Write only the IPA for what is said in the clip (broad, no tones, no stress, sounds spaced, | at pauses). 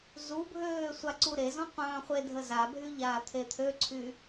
z u bʱ øː sʷ a ǀ u ɾ e z ɔ̃ qʷ œ̃ː χʷ e dʱ ə z a bʱ y ʎ aː t̪ʰ e t̪ʰ ø ǀʰ y